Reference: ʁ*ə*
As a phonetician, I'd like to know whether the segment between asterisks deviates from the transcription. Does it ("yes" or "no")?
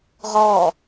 yes